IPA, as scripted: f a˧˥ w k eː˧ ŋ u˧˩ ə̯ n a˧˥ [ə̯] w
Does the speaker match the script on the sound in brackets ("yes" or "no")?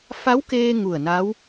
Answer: no